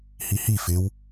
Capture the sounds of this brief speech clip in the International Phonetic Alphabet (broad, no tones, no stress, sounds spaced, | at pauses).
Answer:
h i h i f ɪ w